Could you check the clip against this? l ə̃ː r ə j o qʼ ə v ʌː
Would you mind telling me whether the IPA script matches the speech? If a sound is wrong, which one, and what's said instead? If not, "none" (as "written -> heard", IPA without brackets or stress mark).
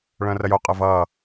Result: l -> ɭ